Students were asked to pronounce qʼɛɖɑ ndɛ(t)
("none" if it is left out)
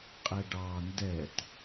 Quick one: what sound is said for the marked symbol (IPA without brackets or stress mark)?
t